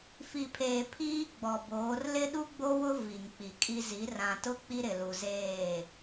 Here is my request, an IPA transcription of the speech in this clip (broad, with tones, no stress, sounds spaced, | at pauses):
f i˨ pʰ eː˨ pʰ iː˦ ɡ͡b ɔ˨ b oː˨˦ r l ɪ˦ ɗ u˦ ɡ͡b o˦ w ʊ˦ v i˨ ŋ k͡p i˨ kʼ i˦ z i˨˦ r ã˨ t ʊ˦ k͡p i˦ ɾ ɪ˨ l u˨ z eː˦˨